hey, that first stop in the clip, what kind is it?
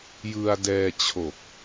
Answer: plain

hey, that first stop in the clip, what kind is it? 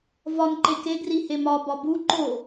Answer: click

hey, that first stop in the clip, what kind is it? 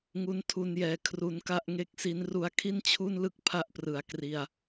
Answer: aspirated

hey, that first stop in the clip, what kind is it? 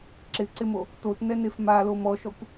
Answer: click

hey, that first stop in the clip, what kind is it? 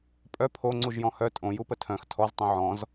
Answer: ejective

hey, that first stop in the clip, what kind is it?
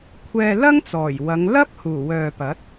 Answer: aspirated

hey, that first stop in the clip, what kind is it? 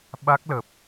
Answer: implosive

